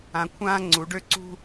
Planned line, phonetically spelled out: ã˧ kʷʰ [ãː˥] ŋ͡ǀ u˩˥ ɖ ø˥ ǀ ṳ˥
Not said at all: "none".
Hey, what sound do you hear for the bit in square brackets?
ãː˥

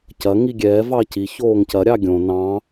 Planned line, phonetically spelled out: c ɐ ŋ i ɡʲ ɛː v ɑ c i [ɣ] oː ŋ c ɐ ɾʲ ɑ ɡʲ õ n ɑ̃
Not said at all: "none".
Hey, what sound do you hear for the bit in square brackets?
ç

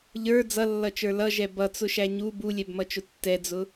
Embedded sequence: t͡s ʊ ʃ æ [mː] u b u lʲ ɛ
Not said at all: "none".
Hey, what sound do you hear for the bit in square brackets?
ɲ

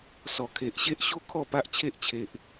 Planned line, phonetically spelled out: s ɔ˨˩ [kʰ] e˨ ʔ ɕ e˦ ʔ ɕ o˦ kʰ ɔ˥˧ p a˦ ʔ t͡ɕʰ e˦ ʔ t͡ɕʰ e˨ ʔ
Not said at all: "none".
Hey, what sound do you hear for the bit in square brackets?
kʰ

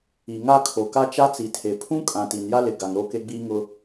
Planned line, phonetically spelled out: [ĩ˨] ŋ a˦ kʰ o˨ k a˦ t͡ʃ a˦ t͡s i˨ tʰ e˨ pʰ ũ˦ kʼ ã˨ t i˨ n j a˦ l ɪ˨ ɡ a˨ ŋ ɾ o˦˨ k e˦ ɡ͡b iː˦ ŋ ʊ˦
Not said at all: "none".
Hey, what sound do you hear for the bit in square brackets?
i˨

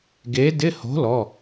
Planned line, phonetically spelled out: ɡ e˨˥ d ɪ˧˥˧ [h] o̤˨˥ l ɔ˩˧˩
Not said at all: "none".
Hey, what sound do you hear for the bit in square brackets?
h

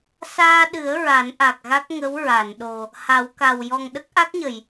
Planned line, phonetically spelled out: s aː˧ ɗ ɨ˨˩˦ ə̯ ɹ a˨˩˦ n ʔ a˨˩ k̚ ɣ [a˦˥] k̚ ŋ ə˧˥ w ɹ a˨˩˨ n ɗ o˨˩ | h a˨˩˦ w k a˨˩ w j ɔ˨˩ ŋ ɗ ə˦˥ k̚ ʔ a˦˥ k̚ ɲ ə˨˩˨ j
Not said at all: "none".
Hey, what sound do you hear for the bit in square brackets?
a˦˥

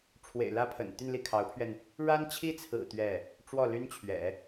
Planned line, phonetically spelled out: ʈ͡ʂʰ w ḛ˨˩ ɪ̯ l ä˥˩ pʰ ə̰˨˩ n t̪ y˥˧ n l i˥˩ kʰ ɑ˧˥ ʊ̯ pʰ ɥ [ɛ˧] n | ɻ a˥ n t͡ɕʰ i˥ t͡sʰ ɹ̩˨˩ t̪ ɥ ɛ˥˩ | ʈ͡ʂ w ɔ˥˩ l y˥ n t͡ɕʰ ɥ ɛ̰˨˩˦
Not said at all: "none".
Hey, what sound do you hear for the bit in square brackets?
ɛ˧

